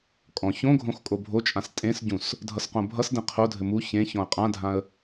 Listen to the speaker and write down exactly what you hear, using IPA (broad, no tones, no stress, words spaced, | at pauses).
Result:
kʼɔ̃ çõɡʱõx kʼobʱot͡ʃʼãs tʼẽsɟũs | dʱʌsqõbʱʌsdẽ qʰodʱɘ mu çẽ çɔ̃ə̯qʼãdʱãə̯